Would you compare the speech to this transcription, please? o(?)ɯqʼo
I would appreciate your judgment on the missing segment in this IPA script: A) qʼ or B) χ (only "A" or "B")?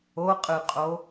A